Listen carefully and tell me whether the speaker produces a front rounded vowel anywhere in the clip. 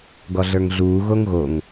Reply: no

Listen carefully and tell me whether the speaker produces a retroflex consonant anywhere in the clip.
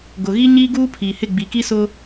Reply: no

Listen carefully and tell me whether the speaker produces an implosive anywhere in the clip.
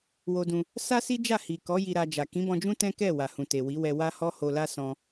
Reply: no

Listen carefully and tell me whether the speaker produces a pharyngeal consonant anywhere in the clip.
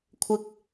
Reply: no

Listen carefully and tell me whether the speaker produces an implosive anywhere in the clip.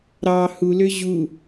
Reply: no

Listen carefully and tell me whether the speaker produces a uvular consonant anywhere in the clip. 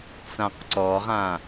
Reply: yes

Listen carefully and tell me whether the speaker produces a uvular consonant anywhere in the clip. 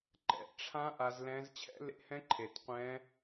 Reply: yes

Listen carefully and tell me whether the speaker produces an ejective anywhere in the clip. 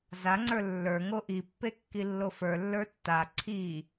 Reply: no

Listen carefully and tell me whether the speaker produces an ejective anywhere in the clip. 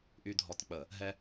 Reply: no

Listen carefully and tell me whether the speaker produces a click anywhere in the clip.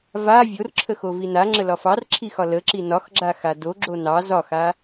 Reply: yes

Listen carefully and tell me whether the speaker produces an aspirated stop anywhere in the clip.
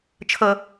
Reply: yes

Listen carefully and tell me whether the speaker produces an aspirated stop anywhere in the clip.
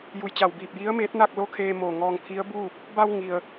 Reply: yes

